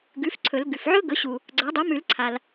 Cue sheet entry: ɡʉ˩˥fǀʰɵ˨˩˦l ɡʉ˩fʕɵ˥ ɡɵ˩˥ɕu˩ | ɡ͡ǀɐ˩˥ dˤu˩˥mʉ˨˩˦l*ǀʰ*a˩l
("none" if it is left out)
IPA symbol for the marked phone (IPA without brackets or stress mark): ǀʰ